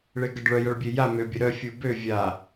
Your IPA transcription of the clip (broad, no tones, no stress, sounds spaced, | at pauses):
ɭ e ɡ ʌ ɖ ɭ œ j ɐ ɭ bʲ e j a m ø bʲ ə ɾ œ fʲ u b ø vʲ a